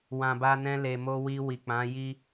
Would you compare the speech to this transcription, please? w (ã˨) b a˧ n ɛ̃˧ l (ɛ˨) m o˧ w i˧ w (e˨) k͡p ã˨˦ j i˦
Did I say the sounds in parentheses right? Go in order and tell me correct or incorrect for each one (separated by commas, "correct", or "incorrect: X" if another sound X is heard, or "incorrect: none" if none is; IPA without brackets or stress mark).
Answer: correct, incorrect: e˨, incorrect: i˨